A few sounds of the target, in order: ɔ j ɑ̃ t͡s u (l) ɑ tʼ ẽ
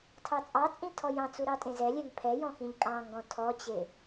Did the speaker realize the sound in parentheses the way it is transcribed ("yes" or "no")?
no